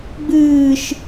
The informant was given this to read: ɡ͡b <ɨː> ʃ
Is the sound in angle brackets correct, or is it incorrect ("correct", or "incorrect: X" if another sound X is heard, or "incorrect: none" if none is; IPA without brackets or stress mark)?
correct